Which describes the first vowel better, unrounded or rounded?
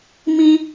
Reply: unrounded